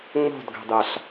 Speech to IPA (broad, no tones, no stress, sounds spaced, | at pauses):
ŋ͡m o̤ d ɡ ɑ̤ d ɑ ɬ